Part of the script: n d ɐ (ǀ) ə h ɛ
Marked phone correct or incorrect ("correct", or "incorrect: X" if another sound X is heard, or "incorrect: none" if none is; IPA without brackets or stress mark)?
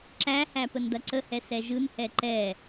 correct